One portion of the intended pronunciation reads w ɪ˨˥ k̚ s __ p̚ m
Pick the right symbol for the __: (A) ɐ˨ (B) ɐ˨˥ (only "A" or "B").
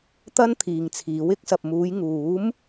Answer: A